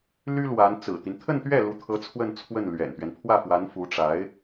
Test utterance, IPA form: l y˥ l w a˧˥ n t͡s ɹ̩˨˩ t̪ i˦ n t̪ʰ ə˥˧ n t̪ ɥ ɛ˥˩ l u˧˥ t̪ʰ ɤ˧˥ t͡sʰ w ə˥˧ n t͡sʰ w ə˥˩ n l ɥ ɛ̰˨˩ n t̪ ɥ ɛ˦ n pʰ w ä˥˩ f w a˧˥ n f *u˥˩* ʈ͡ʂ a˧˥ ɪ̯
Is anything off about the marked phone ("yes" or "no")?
yes